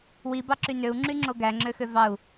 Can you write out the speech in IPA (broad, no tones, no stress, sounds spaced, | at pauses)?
w i b ɑ ǁ y n ø u̯ ŋ͡ǁ y ŋ͡ǁ o ɡ æ ŋ͡ǁ ø x ø v ɑ u̯